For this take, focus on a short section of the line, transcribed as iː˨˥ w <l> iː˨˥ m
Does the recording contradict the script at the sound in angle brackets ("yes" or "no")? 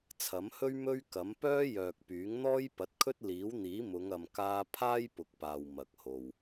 yes